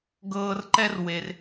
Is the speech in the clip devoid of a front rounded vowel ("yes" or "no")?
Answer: yes